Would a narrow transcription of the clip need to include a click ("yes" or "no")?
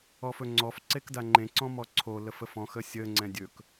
yes